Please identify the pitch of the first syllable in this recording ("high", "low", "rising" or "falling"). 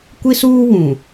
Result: high